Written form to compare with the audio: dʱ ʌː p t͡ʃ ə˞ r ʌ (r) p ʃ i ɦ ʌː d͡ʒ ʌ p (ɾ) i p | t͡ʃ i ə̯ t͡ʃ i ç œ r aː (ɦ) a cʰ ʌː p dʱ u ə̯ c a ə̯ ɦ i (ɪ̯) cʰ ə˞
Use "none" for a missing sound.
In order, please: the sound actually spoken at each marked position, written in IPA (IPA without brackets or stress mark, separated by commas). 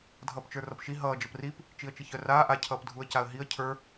none, r, ʔ, ə̯